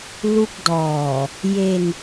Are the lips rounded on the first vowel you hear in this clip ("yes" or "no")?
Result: yes